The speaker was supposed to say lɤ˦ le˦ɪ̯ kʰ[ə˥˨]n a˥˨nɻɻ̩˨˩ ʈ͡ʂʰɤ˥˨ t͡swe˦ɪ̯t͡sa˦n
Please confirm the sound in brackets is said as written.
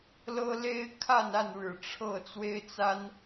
no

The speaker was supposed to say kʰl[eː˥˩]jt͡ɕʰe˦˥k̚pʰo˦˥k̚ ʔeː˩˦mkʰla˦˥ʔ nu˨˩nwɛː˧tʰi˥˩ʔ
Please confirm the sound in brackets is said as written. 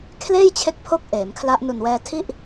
yes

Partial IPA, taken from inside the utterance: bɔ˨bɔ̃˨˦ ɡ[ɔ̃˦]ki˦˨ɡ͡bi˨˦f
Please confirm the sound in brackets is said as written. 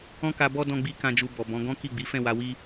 yes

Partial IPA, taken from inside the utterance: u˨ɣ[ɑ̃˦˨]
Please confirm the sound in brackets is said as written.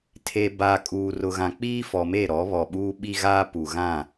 no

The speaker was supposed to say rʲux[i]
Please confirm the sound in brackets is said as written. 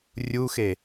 no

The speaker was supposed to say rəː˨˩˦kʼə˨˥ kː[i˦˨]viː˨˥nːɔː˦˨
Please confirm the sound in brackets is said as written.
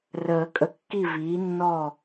yes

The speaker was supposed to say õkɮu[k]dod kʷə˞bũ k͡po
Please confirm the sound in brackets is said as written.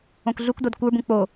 yes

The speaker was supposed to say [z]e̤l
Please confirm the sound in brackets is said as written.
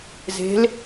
yes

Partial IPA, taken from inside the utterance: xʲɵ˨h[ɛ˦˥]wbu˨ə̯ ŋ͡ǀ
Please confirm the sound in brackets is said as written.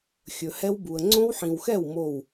yes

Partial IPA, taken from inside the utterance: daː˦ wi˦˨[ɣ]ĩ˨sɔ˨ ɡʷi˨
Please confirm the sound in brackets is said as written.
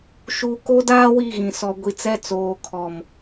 yes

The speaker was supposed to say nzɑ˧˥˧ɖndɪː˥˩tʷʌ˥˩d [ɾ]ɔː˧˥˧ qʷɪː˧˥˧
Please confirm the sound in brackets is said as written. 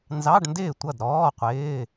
yes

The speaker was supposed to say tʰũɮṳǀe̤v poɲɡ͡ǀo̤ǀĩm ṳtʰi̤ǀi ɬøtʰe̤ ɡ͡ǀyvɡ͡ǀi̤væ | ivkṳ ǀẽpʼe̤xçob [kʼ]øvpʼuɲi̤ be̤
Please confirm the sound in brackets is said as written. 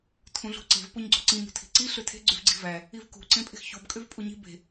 yes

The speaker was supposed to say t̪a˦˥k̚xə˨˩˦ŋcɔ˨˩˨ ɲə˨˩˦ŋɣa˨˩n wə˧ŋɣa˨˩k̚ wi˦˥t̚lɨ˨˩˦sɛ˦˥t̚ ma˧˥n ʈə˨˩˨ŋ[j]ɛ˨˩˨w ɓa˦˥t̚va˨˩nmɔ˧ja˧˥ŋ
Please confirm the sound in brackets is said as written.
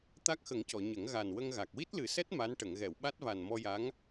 no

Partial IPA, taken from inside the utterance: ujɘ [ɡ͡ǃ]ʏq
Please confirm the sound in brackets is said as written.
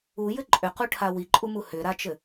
no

